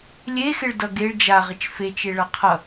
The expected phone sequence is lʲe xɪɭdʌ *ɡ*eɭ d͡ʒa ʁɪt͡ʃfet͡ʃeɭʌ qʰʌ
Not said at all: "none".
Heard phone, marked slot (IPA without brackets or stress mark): ɡ